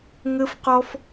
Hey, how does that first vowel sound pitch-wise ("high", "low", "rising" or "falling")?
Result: high